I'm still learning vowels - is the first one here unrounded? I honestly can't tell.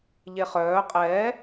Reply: yes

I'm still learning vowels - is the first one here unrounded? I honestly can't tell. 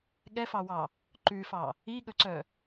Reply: yes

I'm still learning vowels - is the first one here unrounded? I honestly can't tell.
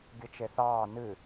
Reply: yes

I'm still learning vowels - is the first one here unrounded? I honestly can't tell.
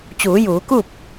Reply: no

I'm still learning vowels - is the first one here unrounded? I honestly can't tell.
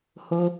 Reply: no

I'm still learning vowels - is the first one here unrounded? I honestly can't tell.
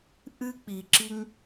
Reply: yes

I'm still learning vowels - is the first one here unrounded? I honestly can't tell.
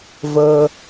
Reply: yes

